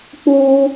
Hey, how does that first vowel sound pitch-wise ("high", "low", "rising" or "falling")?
high